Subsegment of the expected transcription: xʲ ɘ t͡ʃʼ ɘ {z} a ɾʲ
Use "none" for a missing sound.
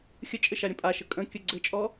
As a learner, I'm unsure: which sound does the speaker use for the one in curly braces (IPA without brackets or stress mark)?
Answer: ʃ